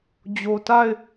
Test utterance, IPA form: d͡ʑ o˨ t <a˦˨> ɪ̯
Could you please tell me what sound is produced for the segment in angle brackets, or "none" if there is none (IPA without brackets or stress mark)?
a˦˨